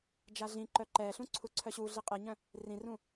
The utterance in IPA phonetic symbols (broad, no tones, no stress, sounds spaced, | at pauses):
d͡ʒ a ɮ ĩ ǃ œ ǃ ɛ ɬ ũ ǀʰ u ǀʰ œ ɕ u ɮ i qʼ e ɲ œ̃ | r ĩ r ũ